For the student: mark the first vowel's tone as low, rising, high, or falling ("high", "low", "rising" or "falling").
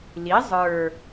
rising